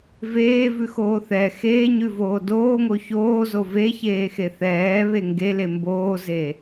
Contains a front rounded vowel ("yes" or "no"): no